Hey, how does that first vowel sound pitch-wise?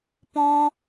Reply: high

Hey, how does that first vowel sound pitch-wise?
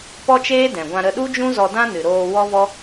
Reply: high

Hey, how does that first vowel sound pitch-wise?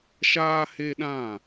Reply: high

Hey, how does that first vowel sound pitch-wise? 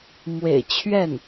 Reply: low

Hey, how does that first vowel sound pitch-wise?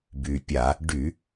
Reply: low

